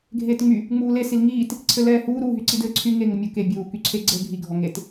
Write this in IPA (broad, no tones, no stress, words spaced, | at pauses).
ɡʱeːtŋ͡my | ŋ͡muːle silŋiːt | ǀʰɘlɛːhuː ɾu ɦyǀidɘːǀʰy ŋe ŋəmʲu ke bʲuː kyǀʰeɡ͡ǀɘːɡʱi ɡʱɔŋet